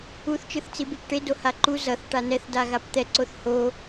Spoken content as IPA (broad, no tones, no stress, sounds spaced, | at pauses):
u θ t͡ʃ ɯ θ t͡s i b e p ʈ e d o h a ǃ u z ʌ θ ʈ a n ɛ θ d a ɣ a p t̪ ɛ ǀ o θ h o